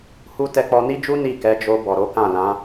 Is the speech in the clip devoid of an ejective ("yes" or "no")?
yes